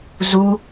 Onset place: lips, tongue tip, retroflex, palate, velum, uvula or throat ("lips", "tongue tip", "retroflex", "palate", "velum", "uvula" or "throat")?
tongue tip